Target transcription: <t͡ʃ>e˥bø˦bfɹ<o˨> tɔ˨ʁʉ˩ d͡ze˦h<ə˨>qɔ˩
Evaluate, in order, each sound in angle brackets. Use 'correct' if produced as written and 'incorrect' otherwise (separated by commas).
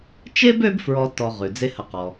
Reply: correct, incorrect, correct